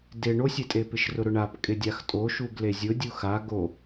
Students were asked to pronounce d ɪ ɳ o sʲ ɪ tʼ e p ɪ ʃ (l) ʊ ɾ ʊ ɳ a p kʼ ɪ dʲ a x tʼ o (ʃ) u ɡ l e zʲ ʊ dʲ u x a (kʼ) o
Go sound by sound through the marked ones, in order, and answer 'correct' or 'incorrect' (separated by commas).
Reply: incorrect, correct, incorrect